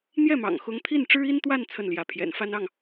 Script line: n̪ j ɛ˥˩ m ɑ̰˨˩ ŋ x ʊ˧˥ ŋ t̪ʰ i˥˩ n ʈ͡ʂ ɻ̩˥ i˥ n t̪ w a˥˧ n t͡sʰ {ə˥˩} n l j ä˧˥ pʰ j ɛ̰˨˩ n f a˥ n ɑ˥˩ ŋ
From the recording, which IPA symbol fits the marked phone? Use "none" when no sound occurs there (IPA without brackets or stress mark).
ə˥˩